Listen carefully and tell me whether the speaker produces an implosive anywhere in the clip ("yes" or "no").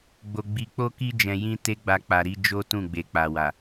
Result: no